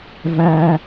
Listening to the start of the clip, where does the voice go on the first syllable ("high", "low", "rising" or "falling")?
high